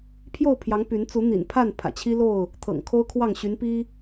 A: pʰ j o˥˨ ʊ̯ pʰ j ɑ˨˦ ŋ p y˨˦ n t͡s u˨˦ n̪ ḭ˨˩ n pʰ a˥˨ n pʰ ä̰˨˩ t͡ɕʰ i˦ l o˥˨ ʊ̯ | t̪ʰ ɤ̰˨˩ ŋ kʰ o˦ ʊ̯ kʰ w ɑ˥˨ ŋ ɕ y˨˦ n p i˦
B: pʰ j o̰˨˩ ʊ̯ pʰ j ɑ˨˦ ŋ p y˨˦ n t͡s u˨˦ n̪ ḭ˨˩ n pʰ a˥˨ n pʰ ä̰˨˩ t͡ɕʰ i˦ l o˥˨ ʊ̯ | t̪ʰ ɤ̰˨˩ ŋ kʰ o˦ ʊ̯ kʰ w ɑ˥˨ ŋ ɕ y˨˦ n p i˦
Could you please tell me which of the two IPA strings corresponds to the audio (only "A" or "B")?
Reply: A